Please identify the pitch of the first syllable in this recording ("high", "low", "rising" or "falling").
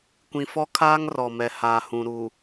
low